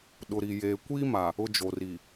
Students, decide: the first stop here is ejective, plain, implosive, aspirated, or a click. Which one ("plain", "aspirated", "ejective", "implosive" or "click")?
implosive